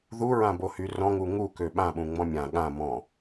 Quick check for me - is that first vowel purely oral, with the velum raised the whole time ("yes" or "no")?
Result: yes